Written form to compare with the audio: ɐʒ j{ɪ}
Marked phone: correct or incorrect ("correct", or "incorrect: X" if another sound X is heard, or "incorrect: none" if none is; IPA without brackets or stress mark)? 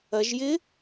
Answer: correct